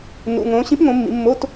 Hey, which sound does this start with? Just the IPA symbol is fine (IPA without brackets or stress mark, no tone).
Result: n